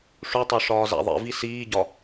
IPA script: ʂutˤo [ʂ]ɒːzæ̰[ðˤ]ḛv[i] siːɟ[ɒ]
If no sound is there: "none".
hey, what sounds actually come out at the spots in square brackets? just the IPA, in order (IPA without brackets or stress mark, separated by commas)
ʂ, ðˤ, i, ɒ